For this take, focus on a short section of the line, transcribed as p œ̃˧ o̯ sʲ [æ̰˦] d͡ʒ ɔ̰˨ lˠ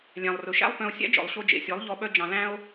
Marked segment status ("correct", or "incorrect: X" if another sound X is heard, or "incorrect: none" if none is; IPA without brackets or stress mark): correct